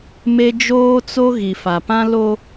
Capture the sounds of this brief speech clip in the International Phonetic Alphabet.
m e˦ d͡ʒ oː˦ t͡s o˦ ɣ i˨ f a˨ p ã˦ l o˦

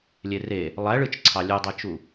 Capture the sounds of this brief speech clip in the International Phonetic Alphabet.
lʲ e r e | lˠ æ ɭ ɯ t͡ʃ ǀʰ ɑ lʲ u dˤ e t͡ʃ u

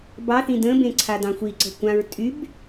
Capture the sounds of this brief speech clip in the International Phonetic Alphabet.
b ɑ θ ĩ d ə̃ b ẽ ǀʰ a d ɑ̃ xʷ i ǀ ə̤ kʷ ã ɹ tʼ y b

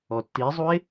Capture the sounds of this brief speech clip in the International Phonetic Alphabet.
ɔ tː i zˤ u e̯

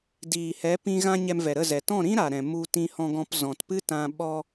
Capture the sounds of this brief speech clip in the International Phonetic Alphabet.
d iː˨ h ɛ˨˦ p ĩ˧ ɣ ã˧ ɲ ɛ˧ m v ɛ˨ ɾ ə˦˨ z ɛ˨ t ɔ̃˦˨ ɾ ĩ˦ ɾ a˨ ɾ ɛ̃˨ m u˧ t ĩ˧ h ɔ̃˧ ɡ ɔ̃˧ p z ɔ̃˨ t p ɨ˦ t ã˧ ɓ ɔ˧

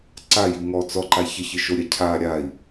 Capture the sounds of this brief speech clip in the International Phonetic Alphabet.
ǀ a j i ŋ ɔ t͡s ɔ ǃ a ç ə ç ɨ ʃ o ɾʲ a cʰ a ɾʲ a i̯

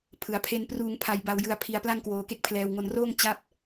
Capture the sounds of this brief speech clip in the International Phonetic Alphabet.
pʰ ɯ˩˦ a̯ pʰ e˧ n p r uː˧ ŋ pʰ a˧ j b a˧ w j ɯ˧ a̯ pʰ i˧ a̯ p l a˥˩ ŋ k w oː˧ k e˦˥ k̚ pʰ l ɛː˧ w ŋ o˧ n r oː˥˩ ŋ t͡ɕ a˥˩ p̚

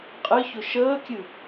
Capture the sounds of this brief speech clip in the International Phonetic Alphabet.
qʼ ɨ ç ʊ ʃ əː kʲ ɨ

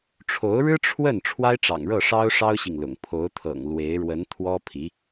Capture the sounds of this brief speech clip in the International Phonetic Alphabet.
ʈ͡ʂʰ o˧˥ ʊ̯ ɻ ɻ̩˥ ʈ͡ʂʰ w ə˥˩ n ʈ͡ʂʰ w a˥ ɪ̯ ʈ͡ʂ ɑ̰˨˩ ŋ ɻ ɤ˥˩ ʂ ɑ˥ ʊ̯ ʂ ɑ˥ ʊ̯ ɕ i˨ ŋ l ʊ̰˨˩ ŋ pʰ o˧˥ ʊ̯ t̪ʰ ɤ̰˨˩ ŋ l w e˧˥ ɪ̯ ɻ w ə˧˥ n t̪ʰ w ɔ˥ pʰ i˧˥

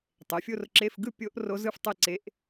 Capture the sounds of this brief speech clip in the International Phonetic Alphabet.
tˤ e˩˥ fʲ o˧˥˧ r ǁ e˧˥˧ f ɡ ɯ˥˧ pʲ o˦˥ ʔ r o˦˥ z ɯ˥˧ f tˤ e˥˧ ǀ e˦˥ ʔ

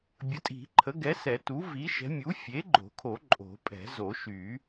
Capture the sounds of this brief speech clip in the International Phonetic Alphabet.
bʲ ə˩˥ tʼ i̤˨˩˦ ǃʰ ə˩˥ ɡ ɛ˩˥ s ɛ˨˩˦ t u˩˥ v i˩˥ ʃ ɛ̤˩˥ mʲ u˩˥ fʲ e˩˥ ɡ͡ǃ o̤˨˩˦ kʰ o˨˩˦ ǃʼ o̤˨˩˦ pʼ ɛ̤˨˩˦ z o˨˩˦ ʃ y˨˩˦

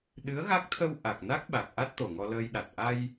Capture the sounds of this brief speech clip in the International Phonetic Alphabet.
ɗ ɨ˧˥ ə̯ ɣ a˦˥ k̚ t̪ʰ ə˧ w ʔ a˨˩ k̚ n a˦˥ k̚ ɓ a˨˩ k̚ ʔ a˦˥ t̚ t̪ o˨˩ ŋ ɔ˧ l əː˧ j ɗ a˨˩ t̚ ʔ a˧ j

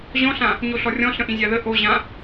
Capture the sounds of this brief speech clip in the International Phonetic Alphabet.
ʑ ɔ̃ ɬ ã | ɲ o ɬ ɔ rʲ ɔ̃ ɬ ə̃ ʔ ĩ zʲ ɑ ð ə ʔ o ʑ ã

